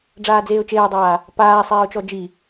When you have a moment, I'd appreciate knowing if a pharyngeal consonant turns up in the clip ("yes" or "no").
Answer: no